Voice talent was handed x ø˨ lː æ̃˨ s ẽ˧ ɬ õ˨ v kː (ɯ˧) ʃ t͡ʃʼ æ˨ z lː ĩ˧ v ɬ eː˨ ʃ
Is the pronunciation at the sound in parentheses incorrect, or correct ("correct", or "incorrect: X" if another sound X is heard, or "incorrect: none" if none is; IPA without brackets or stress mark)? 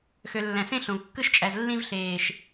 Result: correct